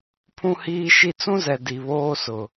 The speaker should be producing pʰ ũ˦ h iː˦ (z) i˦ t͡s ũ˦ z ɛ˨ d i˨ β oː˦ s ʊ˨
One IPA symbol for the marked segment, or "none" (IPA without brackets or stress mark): ʃ